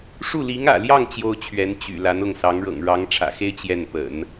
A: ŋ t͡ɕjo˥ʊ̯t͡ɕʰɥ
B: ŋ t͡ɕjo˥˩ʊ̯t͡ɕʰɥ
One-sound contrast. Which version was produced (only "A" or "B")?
A